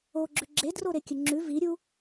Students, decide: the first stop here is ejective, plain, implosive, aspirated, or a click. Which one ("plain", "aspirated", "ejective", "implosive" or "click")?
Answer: click